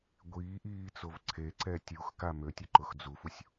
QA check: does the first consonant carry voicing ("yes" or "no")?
yes